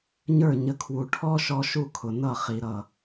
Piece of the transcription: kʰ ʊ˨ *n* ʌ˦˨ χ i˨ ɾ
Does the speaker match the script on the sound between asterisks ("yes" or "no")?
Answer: yes